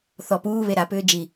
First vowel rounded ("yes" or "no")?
yes